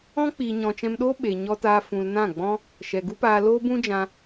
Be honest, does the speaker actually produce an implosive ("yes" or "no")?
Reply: yes